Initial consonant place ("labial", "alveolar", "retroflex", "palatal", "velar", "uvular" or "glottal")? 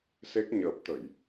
alveolar